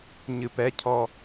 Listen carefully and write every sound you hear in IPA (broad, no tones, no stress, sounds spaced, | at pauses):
ɲ ɨ p ɛ cʰ ɔ